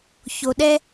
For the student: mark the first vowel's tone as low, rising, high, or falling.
low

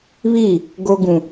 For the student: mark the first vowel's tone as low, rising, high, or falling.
falling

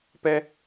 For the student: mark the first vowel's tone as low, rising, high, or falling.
high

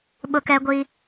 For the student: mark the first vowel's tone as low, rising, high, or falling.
high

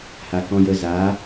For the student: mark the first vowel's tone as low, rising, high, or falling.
low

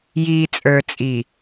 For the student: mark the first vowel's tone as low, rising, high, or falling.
low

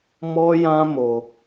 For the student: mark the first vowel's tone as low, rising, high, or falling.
high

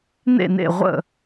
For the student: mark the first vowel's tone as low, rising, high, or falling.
falling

